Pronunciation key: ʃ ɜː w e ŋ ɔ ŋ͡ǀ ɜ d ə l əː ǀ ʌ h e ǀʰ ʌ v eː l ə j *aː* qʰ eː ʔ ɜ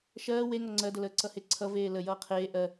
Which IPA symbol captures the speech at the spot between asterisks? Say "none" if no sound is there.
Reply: ʌː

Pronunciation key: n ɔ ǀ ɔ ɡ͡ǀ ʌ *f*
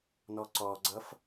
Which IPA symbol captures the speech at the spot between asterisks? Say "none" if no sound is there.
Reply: f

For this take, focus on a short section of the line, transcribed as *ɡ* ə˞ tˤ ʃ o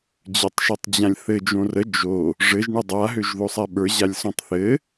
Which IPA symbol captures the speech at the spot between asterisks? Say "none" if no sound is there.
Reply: d͡ʑ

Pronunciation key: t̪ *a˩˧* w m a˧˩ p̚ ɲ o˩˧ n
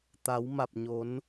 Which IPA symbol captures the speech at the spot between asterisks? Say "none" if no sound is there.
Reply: a˩˧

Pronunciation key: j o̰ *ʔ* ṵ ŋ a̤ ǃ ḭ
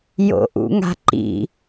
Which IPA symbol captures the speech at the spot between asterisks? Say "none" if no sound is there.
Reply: ʔ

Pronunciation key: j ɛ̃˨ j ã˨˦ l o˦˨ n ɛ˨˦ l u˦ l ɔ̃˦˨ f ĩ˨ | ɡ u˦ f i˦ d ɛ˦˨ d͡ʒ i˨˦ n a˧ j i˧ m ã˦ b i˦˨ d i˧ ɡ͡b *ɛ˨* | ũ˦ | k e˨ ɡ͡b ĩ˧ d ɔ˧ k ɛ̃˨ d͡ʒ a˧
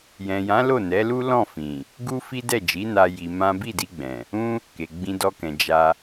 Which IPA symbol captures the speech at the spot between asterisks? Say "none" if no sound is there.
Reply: ɛ̃˨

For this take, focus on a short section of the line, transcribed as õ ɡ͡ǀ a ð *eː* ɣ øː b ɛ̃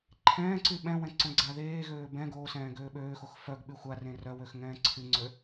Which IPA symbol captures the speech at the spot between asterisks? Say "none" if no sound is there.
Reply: eː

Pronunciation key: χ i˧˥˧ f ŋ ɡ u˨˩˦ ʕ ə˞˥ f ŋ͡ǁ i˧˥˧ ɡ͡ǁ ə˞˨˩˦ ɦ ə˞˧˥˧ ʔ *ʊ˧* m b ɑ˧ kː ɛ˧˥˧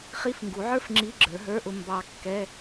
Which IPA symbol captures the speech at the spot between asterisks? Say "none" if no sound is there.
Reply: ʊ˧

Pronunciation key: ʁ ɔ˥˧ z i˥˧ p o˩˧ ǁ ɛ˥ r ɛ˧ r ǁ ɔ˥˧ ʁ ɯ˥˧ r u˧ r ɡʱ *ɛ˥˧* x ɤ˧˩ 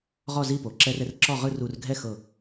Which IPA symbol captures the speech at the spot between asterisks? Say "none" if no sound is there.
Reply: ɛ˥˧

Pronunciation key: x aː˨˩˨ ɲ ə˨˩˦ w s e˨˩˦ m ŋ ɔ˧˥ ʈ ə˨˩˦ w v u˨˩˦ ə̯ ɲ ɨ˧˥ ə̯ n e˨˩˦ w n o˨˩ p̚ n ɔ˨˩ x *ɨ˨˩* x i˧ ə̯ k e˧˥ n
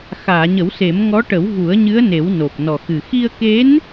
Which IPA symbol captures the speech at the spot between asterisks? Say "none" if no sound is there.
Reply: ɨ˨˩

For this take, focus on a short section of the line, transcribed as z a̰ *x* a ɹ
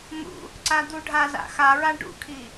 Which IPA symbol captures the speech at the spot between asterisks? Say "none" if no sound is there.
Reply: x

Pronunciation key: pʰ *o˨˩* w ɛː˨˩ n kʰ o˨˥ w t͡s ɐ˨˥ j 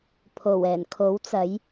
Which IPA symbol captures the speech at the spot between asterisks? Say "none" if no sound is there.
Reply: o˨˩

